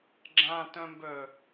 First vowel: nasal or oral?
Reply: nasal